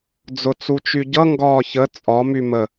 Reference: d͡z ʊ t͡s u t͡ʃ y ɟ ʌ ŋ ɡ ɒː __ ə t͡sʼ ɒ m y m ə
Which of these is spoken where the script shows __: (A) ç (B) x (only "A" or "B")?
A